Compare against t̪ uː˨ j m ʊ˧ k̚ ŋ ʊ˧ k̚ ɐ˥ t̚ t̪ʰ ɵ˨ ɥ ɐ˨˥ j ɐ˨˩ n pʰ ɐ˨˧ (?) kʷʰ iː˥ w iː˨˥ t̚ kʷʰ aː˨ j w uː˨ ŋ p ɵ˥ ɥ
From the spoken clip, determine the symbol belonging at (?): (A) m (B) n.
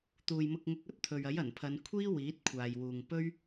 B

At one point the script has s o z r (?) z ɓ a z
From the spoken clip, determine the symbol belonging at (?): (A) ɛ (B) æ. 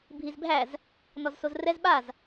A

